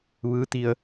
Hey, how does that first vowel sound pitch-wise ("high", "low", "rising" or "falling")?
rising